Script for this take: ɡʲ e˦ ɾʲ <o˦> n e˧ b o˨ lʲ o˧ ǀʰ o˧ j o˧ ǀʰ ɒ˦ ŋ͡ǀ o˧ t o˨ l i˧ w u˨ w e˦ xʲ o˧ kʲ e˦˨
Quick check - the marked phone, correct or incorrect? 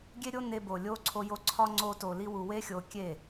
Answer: correct